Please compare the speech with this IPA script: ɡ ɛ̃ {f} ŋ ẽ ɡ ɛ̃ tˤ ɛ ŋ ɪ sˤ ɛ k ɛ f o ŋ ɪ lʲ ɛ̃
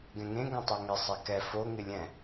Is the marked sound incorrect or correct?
incorrect